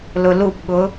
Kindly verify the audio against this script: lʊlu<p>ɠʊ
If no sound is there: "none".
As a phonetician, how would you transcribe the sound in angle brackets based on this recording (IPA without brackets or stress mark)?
p